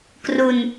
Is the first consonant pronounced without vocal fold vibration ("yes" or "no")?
yes